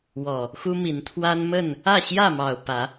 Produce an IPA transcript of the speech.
wɔ˨˩ | xu˦mi˨˦nt̪ʰwa˦n mə˥˨n | ä˥˨ɕjä˥˨mɑ˨˩ʊ̯ pä˨˦

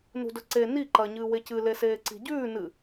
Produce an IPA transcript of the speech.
nṳdɵǀe ni ǃɐ ɲɨːwecɨ leseːǀi̤ɟʉː nɨ

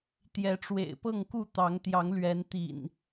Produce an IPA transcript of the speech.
t̪jɛ˨˦ʈ͡ʂwḛ˨˩ɪ̯pɤ˥˨ŋku˥˨ t̪ɑ˨˦ŋt̪jɑ˨˦ŋlɥɛ˨˦n t̪ḭ˨˩n

